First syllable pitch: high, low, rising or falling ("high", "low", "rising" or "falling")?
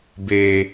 high